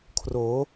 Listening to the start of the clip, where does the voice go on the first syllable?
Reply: rising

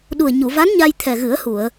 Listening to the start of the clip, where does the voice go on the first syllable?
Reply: low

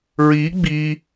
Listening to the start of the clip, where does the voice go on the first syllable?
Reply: rising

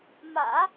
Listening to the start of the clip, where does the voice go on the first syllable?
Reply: low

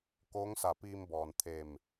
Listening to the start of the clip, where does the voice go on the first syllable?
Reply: rising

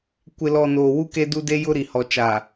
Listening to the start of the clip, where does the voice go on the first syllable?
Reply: low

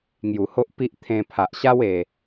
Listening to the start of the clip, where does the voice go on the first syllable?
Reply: low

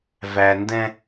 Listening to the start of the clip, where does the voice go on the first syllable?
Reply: low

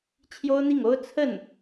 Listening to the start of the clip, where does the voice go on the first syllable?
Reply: high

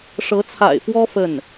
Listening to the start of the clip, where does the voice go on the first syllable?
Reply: rising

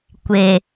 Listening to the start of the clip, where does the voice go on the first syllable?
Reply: low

